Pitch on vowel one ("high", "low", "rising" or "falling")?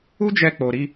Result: high